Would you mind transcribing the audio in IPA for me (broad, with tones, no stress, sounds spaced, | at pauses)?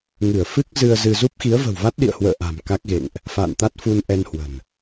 ŋ ɨ˧˩ ə̯ f ɨ˦˥ k̚ z ɨ˧ ə̯ z ɨ˧ z u˦˥ p̚ x i˨˦ ə̯ v ə̤˨˩ w v a˦˥ t̚ ɗ ḭ˧˨ ə̯ h w ə̰ː˧˨ ʔ a̤˨˩ m k a˦˥ k̚ ɣ ḛ˧˨ ŋ ʔ | f a̰ː˧˨ n t̪ a˦˥ t̚ f u˧ n ʔ ɛ˧ n h w ə̤˨˩ n